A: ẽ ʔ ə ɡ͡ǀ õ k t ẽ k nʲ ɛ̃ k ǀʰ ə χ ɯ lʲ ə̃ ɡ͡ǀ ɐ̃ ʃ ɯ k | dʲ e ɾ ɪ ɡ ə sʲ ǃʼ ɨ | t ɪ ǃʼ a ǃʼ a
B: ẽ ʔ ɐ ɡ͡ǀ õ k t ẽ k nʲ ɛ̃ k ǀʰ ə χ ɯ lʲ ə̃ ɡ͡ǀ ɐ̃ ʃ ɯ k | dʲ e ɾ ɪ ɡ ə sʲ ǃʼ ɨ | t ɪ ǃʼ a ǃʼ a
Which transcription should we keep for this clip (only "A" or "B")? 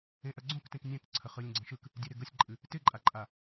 B